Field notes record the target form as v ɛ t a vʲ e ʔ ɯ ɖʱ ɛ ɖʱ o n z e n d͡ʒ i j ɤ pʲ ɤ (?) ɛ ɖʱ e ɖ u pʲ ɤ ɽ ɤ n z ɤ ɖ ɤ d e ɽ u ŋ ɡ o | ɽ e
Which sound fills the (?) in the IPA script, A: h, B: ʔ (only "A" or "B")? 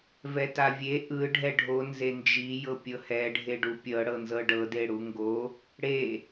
A